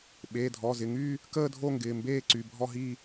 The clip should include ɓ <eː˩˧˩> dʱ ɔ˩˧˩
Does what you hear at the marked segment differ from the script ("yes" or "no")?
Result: no